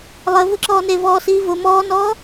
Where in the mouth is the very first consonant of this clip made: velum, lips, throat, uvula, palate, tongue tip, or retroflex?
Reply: tongue tip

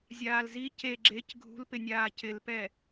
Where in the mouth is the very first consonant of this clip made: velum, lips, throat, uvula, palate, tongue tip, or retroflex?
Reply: tongue tip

